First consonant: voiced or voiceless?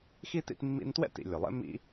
voiceless